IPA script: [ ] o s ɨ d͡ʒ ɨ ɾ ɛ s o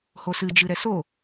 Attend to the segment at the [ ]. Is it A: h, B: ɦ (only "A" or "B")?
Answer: A